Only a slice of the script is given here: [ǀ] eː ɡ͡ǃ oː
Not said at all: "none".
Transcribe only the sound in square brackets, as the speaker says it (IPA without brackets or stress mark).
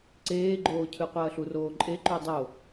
ǀ